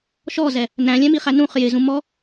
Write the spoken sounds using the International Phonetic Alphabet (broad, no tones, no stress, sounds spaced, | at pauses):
ʃ ɔ z ɛ | n æ̃ lʲ ɛ̃ m i χ æ n ũ χ j ɪ z ũ m ɔ